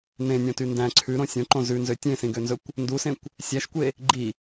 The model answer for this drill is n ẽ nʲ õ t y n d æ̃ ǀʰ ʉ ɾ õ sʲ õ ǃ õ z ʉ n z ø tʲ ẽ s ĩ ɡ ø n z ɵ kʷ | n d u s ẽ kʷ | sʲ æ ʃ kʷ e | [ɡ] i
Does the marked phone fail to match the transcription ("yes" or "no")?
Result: yes